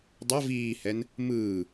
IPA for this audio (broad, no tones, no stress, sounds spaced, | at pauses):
dˤ ɤ v iː h ɛ n | m ɯː